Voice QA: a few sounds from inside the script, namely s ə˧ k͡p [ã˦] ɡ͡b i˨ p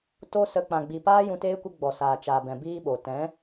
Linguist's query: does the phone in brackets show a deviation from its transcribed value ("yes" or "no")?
yes